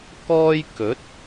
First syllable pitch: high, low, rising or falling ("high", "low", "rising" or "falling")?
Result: high